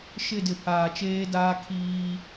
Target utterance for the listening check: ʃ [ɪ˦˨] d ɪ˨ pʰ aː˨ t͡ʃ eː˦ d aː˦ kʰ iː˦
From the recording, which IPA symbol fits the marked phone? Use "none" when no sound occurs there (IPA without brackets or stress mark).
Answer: ɪ˦˨